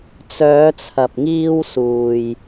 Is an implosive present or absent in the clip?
absent